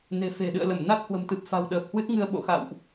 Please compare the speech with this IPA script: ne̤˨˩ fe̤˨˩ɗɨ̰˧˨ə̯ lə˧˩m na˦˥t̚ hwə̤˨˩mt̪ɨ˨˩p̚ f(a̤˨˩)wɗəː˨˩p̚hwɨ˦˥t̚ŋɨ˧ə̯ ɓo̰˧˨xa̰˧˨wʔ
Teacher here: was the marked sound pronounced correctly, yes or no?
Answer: yes